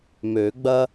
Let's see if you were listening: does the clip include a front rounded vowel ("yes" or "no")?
yes